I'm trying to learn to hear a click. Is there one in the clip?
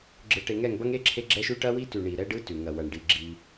yes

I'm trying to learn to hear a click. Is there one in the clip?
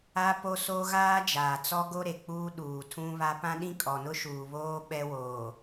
no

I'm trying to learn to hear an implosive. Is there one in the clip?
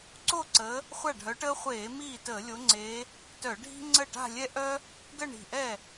no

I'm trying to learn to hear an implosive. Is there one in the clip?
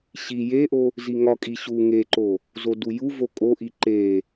no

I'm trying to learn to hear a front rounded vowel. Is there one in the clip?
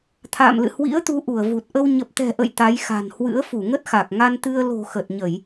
no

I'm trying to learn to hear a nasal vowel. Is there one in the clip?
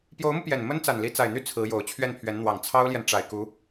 no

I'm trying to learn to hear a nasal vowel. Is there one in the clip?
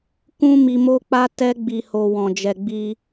yes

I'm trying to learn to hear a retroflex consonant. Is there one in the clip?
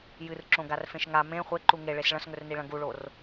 yes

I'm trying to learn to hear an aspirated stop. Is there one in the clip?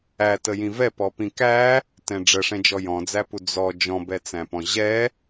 no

